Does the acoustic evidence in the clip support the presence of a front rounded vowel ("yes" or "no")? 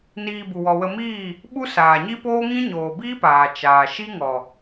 no